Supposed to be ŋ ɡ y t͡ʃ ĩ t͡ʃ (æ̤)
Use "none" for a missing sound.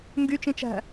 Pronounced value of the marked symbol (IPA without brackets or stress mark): æ̤